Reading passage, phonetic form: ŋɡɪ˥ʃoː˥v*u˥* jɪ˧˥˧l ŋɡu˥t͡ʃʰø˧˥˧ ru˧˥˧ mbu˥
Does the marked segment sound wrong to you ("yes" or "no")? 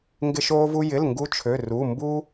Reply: no